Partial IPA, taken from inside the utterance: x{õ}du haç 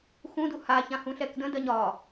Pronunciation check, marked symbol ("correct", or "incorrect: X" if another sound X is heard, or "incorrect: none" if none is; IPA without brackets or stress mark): incorrect: ũ